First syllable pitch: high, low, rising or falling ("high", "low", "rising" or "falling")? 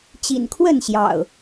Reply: low